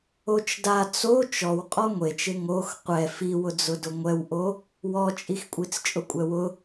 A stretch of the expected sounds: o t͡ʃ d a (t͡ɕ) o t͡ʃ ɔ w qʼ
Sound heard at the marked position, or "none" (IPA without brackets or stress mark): t͡s